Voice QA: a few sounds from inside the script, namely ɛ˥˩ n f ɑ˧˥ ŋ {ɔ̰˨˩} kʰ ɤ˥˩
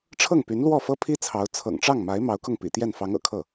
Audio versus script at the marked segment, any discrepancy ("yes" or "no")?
yes